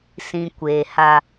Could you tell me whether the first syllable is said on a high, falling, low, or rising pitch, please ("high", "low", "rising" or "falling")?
low